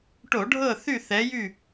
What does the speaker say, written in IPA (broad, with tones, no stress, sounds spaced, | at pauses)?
ʈ o˧˩˧ ɖʱ ɤ˦˨ θ y˦˨ θ ɛ˨˦ j y˦˨